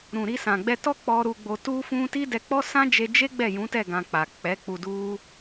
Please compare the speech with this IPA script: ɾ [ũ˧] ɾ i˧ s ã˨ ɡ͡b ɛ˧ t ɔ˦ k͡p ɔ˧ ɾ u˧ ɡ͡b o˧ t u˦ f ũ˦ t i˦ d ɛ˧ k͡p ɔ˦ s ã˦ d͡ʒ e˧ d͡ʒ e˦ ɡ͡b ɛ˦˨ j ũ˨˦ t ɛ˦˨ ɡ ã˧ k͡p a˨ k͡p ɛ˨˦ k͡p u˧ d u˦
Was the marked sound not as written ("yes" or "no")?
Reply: yes